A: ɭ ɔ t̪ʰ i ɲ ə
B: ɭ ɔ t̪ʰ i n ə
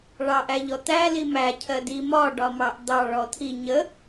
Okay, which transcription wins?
A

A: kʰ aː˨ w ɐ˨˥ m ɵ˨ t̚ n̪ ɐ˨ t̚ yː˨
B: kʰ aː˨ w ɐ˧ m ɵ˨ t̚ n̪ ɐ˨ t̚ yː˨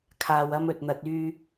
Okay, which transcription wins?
B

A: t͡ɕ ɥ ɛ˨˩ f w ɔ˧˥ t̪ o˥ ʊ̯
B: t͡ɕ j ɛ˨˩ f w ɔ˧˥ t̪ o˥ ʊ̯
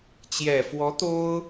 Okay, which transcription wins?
B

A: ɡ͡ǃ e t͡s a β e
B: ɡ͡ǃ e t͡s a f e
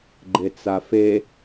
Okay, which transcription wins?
B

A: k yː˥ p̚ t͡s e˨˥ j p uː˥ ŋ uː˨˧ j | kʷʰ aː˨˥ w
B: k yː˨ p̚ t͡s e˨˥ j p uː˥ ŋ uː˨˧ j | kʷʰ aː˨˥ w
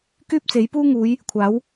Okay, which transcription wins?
A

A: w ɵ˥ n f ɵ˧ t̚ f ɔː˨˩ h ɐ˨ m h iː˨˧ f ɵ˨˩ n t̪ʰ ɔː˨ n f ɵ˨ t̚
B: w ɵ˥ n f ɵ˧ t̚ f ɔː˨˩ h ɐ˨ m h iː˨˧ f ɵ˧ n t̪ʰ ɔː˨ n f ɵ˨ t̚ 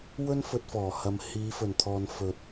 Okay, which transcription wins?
A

